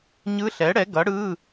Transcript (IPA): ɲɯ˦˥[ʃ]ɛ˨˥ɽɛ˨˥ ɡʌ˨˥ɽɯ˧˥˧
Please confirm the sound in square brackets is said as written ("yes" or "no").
no